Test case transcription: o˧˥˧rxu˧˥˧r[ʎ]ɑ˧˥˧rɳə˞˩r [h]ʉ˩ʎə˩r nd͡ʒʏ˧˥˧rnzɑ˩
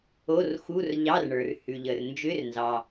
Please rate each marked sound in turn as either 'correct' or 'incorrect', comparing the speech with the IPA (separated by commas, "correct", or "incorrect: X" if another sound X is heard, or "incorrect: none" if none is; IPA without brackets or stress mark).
correct, correct